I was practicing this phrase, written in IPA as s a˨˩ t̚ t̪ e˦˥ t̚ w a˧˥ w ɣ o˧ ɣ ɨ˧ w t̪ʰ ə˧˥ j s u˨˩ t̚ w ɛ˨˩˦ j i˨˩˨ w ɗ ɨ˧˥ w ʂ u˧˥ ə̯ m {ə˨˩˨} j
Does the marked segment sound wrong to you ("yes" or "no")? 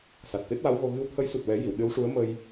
yes